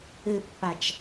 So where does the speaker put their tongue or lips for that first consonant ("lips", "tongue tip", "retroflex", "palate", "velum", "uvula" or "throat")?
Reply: lips